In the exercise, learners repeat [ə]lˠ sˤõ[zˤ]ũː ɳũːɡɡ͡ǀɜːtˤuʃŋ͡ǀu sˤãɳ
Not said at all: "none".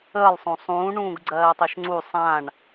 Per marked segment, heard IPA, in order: ə, sˤ

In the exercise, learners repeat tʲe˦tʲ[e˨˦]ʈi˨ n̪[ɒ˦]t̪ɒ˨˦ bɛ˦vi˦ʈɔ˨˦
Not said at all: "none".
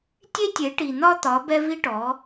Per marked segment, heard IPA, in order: e˨˦, ɒ˦

